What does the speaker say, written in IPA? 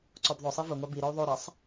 ǀ ɔ b ðˤ ʊ sˤ i v ʊ ŋʷ ɑ b i ɾ ɔ u̯ ðˤ o ɾ ɑ sˤ

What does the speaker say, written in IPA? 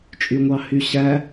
t͡ʃʼ y ŋʷ ɑ h y ɕ æ

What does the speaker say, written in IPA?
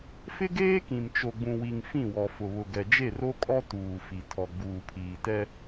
f ɪ˦ ɡ eː˦ k ĩ˨ m t͡ʃ o˨ ɡ͡b ũ˨ w i˨ ŋ f ĩ˦˨ w ɔ˨ f ʊ˨ β ʊ˨ ɡ ɛ˨ d͡ʒ e˦˨ r o˦ kʼ ɔ˦ t uː˨ f i˨ tʰ ɔ˨ ɡ͡b uː˨ pʰ iː˨ t ɛ˦

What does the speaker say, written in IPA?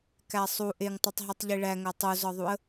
k æ sˤ u ʔ e ŋ tˤ u tˤ ɦ i tˤ ʎ i ɭ æ ŋ æ tˤ u z ɒ ðˤ u ə̯

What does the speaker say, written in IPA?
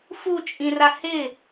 f u t͡ʃʼ ĩ r a h ɪ

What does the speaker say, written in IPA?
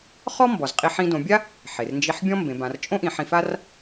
χ ɔ˥ m b ɔ˩ z qʼ i˧ ħ ĩ˧ d õ˩˧ bʲ a˥ | ħ e˩ r n d͡ʒ i˧ ħ bʲ ɔ̃˥ m b ẽ˩˧ b ã˩˧ r t͡ʃʼ õ˥ ʔ ĩ˩˧ ħ ĩ˧ f a˥ r

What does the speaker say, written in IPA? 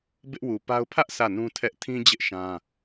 b ɪ˦ ʔ w u˨ p a˦ ʊ̯ pʰ ä˦ ʔ sʰ ä˦˨ n ũ˦ tʰ ɛ˦ ʔ tʰ ĩ˦ d͡ʑ ɪ˦ ʔ ʃ ã˦

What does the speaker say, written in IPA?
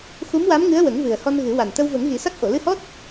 x u˧˥ m w a˧˥ m ŋ ɨ˧˥ ə̯ w ə˨˩˦ ŋ v ɨ˨˩ ə̯ h ɔ˧ n ɣ ɨ˨˩˦ w a˨˩ n t̪ ə˧ w v ə˨˩˦ ŋ ɣ i˨˩˦ s a˦˥ k̚ ʔ o˨˩˨ l ɨ˧ h ɔ˦˥ t̚

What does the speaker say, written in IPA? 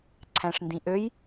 ǀʰ æ̃ ʂ n d ĩ ʔ ø j

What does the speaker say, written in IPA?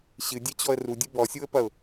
ɕ ɨ dʲ ɛ t͡ɕ ɔ ə̯ r u dʲ ɨ b ɔ sʲ u ə̯ p ɐ ʊ̯

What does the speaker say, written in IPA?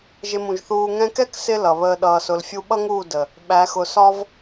ʒ ɪ˧ m ũ˨ ʒ θ uː˧ ŋ ɛ̃˧ k ɛ˦ k s ɪ˦ l ʌ˨ β əː˧ ɗ ʌː˧ s ʊ˧ l fʲ u˧ ɓ ʌ˦ ŋ uː˦˨ d ə˨ | ɓ æ˨˦ x ʊ˧ s ɒ˦ v

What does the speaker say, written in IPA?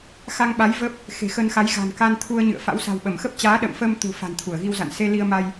x a˧ ŋ ɓ a˨˦ j v ə˦˥ p̚ | x e̤˨˩ x ə˧ n x a˨˦ j ɣ a̤˨˩ n k a˧ n t̪ʰ u˧ ə̯ ɲ ɨ̰˧˨ ə̯ f a̰˧˥ w s a̤˨˩ w ɓ ə˧˩ m x ə˦˥ p̚ t͡ɕ aː˨˦ ɗ ə̰ː˧˨ m f əː˧ m t̪ ṳ˨˩ f a̤˨˩ n t̪ʰ u˧˩ ə̯ ɣ i˧ w z a̰˧˨ n s e˧ l i˧ ə̯ m a˧ j

